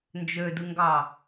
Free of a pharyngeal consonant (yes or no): yes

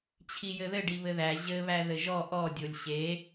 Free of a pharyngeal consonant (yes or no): yes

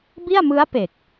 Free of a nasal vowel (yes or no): yes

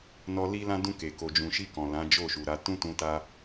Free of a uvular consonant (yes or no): yes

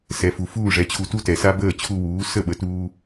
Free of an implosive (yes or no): no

